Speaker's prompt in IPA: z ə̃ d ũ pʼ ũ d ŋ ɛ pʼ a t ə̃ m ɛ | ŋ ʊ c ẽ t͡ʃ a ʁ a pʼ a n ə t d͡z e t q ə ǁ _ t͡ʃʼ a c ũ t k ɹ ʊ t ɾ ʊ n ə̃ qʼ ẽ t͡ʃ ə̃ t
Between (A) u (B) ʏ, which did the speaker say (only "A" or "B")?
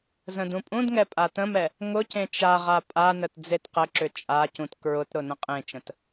B